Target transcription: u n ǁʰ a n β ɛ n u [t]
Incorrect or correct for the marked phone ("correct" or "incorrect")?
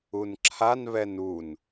incorrect